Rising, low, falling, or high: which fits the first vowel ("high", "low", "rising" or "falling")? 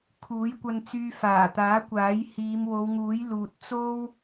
rising